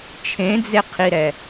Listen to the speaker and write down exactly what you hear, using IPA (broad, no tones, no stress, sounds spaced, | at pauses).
t͡ʃʰ ẽ d͡z e qʰ i ɾ ɛ